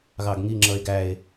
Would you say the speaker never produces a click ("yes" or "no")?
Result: no